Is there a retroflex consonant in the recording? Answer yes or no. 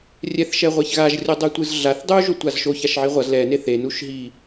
no